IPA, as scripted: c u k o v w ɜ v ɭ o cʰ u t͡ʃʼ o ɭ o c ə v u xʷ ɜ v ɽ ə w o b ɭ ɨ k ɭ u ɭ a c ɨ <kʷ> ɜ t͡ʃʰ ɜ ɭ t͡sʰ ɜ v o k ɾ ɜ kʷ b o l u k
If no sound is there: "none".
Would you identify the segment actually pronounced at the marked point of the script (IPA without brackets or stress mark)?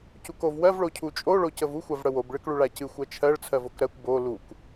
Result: xʷ